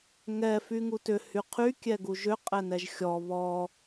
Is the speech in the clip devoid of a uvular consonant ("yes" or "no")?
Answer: no